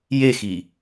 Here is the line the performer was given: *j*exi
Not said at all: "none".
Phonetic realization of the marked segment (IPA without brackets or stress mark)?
j